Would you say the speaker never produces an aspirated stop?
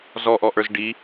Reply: yes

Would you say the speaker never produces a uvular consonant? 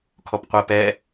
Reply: no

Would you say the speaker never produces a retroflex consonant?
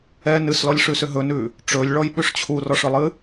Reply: no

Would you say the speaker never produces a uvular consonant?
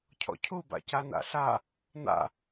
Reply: yes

